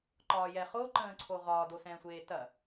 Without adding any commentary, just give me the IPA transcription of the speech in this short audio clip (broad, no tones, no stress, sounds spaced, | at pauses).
ǃ ɒː j ɛ χ o ǃ ə̃ː ǀʰ o ʁ ɒː d o s ɛ̃ː sʷ eː t ɐ